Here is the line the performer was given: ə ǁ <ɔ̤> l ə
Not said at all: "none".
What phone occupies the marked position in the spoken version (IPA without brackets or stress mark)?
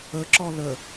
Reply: ɔ